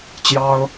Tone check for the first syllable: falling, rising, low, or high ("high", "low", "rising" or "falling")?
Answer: high